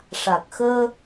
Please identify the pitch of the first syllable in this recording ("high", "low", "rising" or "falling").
low